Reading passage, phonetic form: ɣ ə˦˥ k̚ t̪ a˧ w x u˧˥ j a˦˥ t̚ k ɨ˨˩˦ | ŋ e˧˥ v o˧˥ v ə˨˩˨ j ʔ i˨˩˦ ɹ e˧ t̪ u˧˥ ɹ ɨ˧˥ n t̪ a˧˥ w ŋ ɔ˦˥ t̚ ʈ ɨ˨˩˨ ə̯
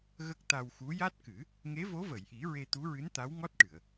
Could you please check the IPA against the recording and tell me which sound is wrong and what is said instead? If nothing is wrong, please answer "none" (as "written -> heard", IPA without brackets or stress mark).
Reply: none